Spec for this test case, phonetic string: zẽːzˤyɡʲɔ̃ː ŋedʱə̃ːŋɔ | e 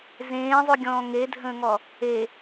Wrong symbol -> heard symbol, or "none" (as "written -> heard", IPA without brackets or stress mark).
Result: none